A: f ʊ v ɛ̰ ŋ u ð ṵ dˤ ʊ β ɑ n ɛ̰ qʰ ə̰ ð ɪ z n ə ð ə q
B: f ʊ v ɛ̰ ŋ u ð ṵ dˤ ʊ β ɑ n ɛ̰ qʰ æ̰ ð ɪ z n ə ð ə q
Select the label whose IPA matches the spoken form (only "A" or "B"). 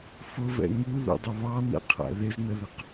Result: B